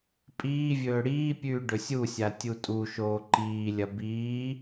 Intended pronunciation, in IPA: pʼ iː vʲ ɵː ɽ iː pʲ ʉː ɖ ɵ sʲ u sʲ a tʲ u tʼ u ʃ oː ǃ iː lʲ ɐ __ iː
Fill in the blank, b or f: b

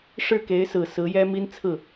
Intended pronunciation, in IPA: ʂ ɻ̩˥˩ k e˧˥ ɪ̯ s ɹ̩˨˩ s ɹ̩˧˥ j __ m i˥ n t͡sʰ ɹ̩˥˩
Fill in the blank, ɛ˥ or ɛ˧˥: ɛ˥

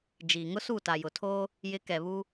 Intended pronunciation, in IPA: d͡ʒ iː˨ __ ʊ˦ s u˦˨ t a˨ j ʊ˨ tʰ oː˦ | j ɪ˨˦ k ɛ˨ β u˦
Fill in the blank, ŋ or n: ŋ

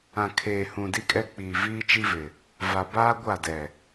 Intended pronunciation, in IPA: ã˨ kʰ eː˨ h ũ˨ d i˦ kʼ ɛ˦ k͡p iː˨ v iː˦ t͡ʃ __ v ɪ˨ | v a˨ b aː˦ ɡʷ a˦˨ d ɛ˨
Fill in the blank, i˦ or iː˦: i˦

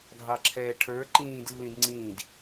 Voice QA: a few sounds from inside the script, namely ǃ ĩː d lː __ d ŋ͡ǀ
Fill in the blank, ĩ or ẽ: ĩ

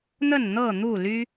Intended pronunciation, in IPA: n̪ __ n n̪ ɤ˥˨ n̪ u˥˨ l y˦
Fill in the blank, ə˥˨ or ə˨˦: ə˥˨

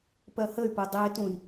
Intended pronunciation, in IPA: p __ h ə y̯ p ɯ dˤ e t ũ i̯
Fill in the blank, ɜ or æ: ɜ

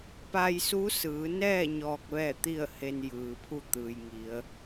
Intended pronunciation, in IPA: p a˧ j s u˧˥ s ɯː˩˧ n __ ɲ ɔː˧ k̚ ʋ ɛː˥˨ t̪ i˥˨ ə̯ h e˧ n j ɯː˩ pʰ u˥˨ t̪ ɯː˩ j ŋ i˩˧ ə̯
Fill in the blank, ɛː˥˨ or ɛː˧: ɛː˥˨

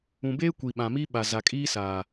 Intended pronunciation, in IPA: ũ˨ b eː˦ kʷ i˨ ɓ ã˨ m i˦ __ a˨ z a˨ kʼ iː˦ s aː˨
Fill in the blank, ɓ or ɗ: ɓ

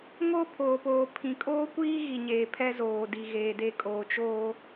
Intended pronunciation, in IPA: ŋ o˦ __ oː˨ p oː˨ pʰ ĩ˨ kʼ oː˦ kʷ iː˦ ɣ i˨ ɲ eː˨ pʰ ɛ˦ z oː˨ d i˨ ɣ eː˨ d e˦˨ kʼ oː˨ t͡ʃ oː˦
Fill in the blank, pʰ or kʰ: pʰ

